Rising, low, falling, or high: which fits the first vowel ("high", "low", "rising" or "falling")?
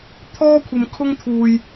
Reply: high